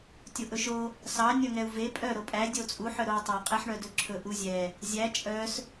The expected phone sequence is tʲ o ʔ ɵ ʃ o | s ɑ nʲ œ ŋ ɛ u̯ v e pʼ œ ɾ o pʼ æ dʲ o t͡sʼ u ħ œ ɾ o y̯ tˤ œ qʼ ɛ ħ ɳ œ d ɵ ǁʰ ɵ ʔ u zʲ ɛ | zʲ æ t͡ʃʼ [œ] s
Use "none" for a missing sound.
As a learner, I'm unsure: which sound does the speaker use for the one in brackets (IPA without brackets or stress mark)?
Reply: œ